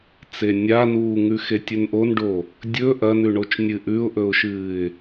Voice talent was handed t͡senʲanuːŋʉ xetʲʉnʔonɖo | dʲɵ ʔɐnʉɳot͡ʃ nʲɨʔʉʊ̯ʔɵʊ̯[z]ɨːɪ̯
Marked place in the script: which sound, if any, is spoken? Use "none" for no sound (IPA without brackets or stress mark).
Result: ʃ